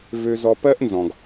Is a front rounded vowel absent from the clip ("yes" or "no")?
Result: no